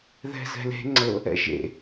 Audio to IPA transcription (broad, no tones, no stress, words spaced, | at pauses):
ðɛ̤zɛ̤le̤ ŋ͡ǀɤ | ɛ̰ʒḛ